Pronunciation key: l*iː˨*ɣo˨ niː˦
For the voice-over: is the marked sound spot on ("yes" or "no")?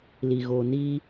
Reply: no